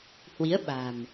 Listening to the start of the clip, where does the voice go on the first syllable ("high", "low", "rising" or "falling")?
rising